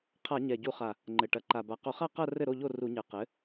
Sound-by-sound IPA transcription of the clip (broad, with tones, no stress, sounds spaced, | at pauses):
qʰ a˧˩˧ ɲ ɛ˨˩ ɟ u˧˩˧ χ a˨˩ | ŋ͡ǃ ɘ˨˩ ʈ ɐ˩˥ ǃ a˨˩ b a˨˩ q o˧˩˧ χ a˥˨ q ɐ˥˨ r ɘ˥˨ ɾ o˥˨ ʎ o˥˨ r u˧˩˧ ɲ ɘ˩˥ q ɘ˩˥